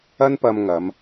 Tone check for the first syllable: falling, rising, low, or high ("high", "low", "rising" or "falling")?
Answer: high